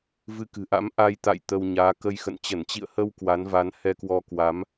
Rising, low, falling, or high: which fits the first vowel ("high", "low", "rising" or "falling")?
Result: rising